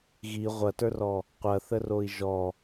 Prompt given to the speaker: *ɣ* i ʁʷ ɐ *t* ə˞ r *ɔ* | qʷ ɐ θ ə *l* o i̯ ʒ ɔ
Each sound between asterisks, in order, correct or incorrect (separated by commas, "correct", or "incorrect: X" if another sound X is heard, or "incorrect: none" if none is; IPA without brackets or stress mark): correct, correct, correct, incorrect: r